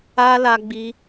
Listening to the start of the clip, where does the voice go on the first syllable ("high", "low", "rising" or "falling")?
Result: high